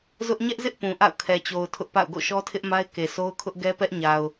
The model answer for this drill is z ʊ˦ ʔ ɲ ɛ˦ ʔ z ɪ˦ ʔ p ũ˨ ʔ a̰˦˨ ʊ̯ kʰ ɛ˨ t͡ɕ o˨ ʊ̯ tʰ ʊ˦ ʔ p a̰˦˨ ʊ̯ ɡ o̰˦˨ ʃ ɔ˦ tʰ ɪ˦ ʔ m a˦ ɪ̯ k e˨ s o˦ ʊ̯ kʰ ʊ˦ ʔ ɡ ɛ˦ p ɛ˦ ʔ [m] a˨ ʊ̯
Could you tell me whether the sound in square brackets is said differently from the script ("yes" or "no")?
yes